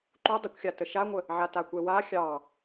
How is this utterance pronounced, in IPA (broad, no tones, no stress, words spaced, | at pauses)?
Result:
ǃu dˤəkʷxʲatə ʃaŋʷə | ʕatakʷɛwa xʲɑ